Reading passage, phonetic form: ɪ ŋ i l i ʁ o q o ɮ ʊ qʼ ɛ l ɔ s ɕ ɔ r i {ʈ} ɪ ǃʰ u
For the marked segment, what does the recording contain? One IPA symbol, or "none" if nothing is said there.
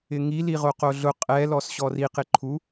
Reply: q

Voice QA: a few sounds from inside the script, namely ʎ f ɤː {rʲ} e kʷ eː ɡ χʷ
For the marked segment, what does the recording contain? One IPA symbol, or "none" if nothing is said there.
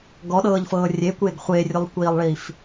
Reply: rʲ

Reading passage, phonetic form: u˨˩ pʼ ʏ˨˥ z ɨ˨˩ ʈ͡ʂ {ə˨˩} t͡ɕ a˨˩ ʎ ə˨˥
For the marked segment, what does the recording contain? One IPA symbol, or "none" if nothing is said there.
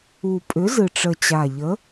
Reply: ə˨˩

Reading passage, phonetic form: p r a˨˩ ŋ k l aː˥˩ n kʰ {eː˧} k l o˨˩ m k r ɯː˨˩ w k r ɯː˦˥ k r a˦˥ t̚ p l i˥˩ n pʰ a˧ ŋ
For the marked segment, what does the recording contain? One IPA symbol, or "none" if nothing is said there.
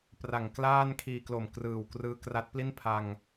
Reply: iː˧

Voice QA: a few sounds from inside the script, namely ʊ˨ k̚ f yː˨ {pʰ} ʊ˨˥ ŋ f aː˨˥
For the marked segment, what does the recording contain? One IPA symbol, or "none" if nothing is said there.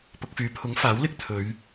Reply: pʰ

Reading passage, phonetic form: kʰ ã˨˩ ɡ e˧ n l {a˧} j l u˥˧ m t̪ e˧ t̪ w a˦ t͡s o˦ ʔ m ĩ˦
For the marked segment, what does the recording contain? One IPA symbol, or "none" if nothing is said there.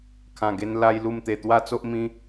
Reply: a˦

